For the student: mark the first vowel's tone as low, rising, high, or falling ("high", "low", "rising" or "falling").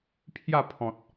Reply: falling